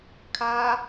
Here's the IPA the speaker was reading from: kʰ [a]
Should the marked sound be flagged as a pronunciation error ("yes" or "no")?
no